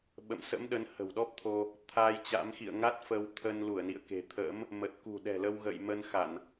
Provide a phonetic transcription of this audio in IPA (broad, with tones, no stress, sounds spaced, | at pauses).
ɓ ə̰˧˨ m s ə̰˧˥ m ɗ ə˨˦ n h ə̤˨˩ w ɗ ɔ˦˥ p̚ t̪ʰ o˧ | t̪ʰ a˧ j t͡ɕ a̰˧˥ m x ḭ˧˨ ə̯ ŋ a˦˥ t̚ f ə˧ w t̪ʰ ə˧ n l u˧˩ ə̯ n ḭ˧˨ ə̯ k e̤˨˩ t̪ʰ ə̰ː˧˥ m | m ə˨˩ t̚ k ṳ˨˩ ɗ ɛ̤˨˩ l ə˧ w ɣ ə̰˧˨ j m ə˧ n x a˧˩˨ n